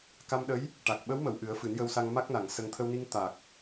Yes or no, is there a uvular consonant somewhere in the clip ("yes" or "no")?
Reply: no